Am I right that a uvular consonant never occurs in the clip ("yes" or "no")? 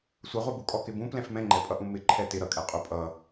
no